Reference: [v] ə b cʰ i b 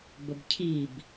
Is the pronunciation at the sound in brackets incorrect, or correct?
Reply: incorrect